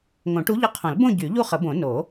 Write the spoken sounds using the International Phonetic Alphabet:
ŋ õ˨˩˦ ʈ u˧˥ ʎ ə˧˥ qʰ õ˨˩˦ l b õ˥˧ ɟ y˨˩˦ ʎ u˥˧ χ ə˨˩˦ b õ˨˩˦ n o˨˩˦

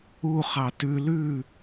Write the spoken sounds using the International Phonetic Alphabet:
u χ ɑ t ʉ l ʉ

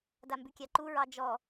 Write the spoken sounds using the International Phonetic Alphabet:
d a m b ʉ kʲ a ǃ u ɹ ɑ d͡ʒ ɔ

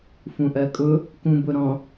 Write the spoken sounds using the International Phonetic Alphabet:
f ũ ʔ ɜ kʼ ʊ | k ũ b ʊ ɾ ɔ̃

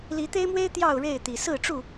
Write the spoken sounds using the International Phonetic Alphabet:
l i˨˦ t̪ e˦ ɪ̯ m w e˦ ɪ̯ t̪ j ɑ˥˨ ʊ̯ ɻ e˥˨ ɪ̯ t̪ i˨˩ s ɹ̩˥˨ ʈ͡ʂ u˥˨

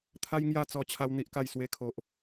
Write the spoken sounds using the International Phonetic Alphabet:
t̪ʰ a˦ j ŋ j a˥˧ t͡s ɔ˧ t͡ɕʰ a˧ w n̪ i˦ ʔ k a˥˧ j s w e˧ kʰ o˨ ʔ

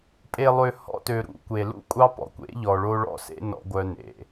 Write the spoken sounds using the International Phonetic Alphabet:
pʼ e˨ lˠ ø˨ h ɔ̰˦ t ø˨ ɾ ṵ˨ kʷ e˨ l ṵ˦ kʷʼ ɑ˦ p ɔ̰˨ kʷ ḛ˨˦ ʎ ɔ˨ ɭ o˦ ɭ ɔ̰˦ s ḛ˦ n ɔ̰˦ ɡʷ œ˦ n ḛ˨

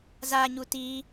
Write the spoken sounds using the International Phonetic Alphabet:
z a ɲ u t i

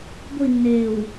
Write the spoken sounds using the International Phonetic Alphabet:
ɡʷ i nː eː w

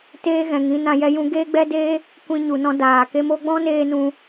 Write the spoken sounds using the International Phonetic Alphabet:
t eː˦ ɣ ɛ̃˨ ŋ ĩ˨˦ n ã˧ j ɛ˦ j ũ˦ ɡ eː˦ ɡ͡b ɛ˦ d eː˦ | kʷ ĩ˧ ɲ u˨ n ɔ̃˧ d aː˨ k e˧ m o˧ ɡ͡b ɔ̃˦ n eː˦ n ũ˧

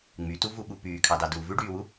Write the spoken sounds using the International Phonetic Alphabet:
ŋ͡m y t u v u ɓ u p yː kʰ ɑ d ɑ d uː v ʉ ɖ yː w u

